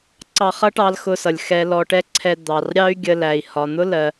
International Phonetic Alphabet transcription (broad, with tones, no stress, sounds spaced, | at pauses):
ǀ ɑ˧ χ ʌ˥ ʈ ɑ˧ l x ʊ˧ s ʌ˩ lʲ x ɛ˧ l ɔ˧ ʈ ɛ˥ ǀʰ ɛ˧ d̪ ɑ˩ r ɾʲ ɑ˥ y̯ ɡʲ ə˧ l æ˩ i̯ h ɒ˩ n̪ ʊ˥ l ɜ˩